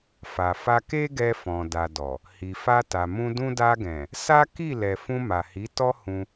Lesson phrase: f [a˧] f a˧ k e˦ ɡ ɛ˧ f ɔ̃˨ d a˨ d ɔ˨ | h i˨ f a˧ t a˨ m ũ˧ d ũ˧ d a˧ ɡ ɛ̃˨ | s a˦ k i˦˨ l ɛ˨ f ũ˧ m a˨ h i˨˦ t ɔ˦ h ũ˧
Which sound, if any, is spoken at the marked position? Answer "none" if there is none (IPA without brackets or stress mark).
a˨